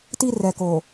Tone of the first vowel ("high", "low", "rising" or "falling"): high